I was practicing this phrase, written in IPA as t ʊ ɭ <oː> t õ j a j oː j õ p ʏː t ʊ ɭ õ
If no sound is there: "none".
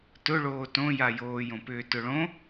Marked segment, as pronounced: oː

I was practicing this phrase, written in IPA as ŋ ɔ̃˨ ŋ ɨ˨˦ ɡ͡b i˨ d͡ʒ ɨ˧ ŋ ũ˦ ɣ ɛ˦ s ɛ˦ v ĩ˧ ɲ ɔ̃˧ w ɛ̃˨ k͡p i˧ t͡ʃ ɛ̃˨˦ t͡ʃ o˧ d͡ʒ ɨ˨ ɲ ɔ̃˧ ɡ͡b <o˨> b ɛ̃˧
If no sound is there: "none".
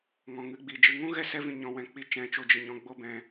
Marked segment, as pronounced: o˦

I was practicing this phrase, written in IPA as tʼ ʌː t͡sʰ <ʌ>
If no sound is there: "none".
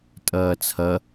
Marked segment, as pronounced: ʌ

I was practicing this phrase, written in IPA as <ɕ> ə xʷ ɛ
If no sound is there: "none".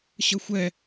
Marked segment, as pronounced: ɕ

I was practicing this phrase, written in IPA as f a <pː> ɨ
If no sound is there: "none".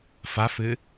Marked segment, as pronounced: f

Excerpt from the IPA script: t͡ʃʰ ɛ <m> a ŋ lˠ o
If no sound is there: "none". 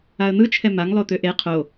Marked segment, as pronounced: m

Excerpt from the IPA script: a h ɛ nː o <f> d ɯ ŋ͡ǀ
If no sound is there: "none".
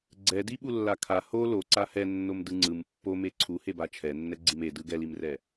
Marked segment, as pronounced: m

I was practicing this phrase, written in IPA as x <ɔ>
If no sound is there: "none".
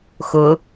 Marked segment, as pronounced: ʊ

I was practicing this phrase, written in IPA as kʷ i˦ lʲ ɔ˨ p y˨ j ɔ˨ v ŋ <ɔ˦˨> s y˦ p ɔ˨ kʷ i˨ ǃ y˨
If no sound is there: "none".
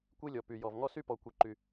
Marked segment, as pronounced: ɔ˦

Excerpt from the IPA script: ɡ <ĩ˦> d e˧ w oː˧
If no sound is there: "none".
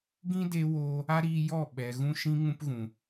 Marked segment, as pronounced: ĩ˦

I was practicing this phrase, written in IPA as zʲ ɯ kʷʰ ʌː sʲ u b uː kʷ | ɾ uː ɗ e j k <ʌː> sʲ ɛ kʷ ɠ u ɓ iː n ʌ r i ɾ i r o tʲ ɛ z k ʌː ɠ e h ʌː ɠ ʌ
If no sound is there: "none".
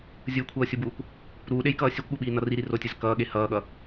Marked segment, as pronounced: ʌː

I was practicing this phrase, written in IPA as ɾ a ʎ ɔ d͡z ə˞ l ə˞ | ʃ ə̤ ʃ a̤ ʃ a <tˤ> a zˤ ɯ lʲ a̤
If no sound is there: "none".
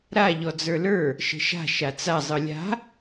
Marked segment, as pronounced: t͡s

